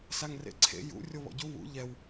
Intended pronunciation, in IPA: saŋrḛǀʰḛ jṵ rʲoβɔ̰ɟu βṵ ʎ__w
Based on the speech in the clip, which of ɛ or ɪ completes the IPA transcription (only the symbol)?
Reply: ɛ